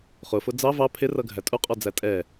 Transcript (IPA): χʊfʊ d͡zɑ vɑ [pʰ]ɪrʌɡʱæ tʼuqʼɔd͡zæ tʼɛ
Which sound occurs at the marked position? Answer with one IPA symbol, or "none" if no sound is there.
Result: pʰ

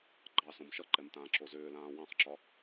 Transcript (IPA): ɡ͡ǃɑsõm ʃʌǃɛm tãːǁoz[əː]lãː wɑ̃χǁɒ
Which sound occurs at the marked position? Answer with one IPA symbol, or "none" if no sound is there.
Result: ʏː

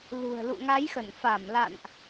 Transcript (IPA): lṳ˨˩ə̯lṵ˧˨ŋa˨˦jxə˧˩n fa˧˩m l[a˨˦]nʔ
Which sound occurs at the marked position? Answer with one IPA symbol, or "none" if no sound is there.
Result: a̰˧˨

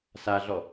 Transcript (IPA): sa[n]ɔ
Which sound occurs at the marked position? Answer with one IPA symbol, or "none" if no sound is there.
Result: ɮ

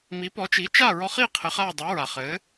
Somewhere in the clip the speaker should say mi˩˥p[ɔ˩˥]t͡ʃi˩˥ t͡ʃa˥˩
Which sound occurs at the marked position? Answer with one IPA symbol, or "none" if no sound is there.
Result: ɔ˩˥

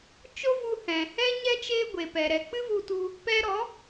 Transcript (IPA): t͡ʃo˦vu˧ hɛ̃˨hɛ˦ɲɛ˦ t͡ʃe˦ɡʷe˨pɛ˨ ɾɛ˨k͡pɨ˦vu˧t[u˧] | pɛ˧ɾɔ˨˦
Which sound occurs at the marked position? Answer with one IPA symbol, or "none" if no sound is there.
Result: u˧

